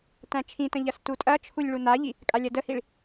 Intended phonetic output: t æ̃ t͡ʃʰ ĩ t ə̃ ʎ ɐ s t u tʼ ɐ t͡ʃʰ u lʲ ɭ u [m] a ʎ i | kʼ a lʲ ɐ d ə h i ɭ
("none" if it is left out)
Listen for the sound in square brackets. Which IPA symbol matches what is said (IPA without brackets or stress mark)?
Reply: n